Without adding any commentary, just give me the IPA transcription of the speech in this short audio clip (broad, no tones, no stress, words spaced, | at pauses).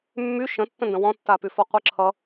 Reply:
mːy ʃə̃tːə̃ndə̃ wɔ̃tːa pyfɔqʷɨǁʰʌ